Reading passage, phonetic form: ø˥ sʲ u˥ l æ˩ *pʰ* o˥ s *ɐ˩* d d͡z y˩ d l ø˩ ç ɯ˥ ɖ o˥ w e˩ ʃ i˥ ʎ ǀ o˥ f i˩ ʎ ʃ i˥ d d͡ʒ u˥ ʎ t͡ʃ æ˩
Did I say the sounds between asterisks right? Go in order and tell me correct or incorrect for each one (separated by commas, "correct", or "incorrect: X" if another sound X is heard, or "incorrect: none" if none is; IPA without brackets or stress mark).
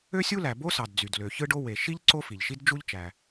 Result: incorrect: b, incorrect: ɑ˩